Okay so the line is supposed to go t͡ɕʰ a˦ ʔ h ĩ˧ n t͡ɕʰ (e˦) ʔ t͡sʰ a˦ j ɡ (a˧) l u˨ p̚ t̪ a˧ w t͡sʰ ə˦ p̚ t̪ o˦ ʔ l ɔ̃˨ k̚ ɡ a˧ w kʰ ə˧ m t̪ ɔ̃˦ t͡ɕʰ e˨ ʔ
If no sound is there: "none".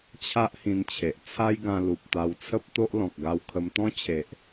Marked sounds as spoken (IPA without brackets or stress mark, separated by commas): e˨, ã˧